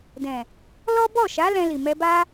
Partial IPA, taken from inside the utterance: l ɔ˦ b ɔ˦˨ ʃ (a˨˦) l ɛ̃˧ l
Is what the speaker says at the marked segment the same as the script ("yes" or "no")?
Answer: yes